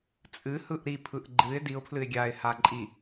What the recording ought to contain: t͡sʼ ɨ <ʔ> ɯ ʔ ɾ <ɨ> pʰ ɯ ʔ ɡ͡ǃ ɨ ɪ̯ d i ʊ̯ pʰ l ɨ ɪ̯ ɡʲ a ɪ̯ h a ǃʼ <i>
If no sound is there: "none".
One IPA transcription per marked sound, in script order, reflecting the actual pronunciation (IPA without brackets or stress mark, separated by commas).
h, i, i